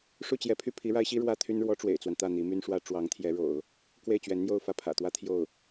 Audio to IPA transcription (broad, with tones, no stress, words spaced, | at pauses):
ʂu˥˩t͡ɕjɛ˧˥pʰy˥˩ pʰi˧˥ɻa˧˥ɪ̯ɕi˥ ɻwä˥t̪ʰy˥n ɻwɔ˧˥ ʈ͡ʂwḛ˨˩ɪ̯t͡swa˦nt̪ä˥˩ n̪i˧˥my˥nʂwä˥ ʈ͡ʂwɑ˧˥ŋt̪ʰjɛ˧˥ɻo̰˨˩˦ʊ̯ | kwe˥˩ɪ̯t͡ɕɥɛ˧˥nn̪jo˥˧ʊ̯ fä˥˩pʰä̰˨˩t̪wä˥ t̪ʰjo˥˩ʊ̯